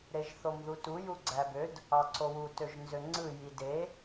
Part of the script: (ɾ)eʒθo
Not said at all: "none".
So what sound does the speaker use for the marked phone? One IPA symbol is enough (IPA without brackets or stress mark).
ɾ